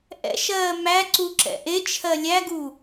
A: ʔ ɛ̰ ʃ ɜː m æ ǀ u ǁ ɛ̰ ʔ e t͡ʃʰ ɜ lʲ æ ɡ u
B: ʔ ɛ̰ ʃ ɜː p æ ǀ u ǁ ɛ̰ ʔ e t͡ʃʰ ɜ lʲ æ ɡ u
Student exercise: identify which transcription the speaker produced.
A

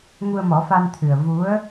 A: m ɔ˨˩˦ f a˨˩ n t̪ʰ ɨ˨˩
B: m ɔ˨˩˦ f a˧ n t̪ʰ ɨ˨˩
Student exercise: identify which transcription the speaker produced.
B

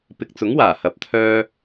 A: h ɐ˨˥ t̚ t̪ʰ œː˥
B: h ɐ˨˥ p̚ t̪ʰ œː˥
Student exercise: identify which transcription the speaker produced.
B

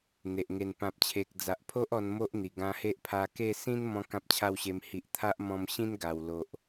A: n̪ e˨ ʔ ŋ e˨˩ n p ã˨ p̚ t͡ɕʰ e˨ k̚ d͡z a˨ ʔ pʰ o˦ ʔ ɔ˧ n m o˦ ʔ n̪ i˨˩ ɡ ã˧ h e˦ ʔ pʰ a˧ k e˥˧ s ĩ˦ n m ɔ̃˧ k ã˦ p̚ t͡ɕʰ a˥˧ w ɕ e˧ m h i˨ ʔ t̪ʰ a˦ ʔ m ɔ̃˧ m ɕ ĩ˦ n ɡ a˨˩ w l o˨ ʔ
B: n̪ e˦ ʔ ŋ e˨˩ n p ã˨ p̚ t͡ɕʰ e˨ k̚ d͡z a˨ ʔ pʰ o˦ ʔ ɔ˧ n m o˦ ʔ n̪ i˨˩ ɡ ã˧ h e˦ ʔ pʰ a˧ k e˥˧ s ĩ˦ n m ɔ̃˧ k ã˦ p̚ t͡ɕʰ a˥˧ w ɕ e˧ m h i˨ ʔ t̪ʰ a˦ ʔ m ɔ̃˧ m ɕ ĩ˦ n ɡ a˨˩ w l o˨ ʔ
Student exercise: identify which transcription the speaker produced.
A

